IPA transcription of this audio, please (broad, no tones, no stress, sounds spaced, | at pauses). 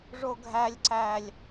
ʐ o ɡʱ æ lʲ ǀ æ lʲ